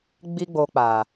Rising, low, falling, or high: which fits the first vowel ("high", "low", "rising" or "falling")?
high